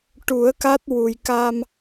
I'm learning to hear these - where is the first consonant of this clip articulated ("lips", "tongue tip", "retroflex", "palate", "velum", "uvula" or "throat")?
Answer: retroflex